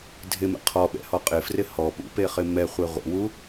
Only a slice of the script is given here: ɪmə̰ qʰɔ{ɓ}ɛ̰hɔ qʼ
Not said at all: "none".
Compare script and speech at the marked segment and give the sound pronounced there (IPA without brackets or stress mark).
ɓ